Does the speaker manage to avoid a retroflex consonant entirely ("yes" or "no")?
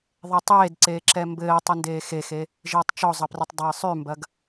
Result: yes